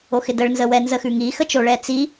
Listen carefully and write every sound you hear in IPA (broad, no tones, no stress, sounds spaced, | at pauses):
o x ɪ d ə ɭ n z ə w ɛ n z ə x ʉ ŋ i x ə t͡ʃ o ɭ ɛ t͡s i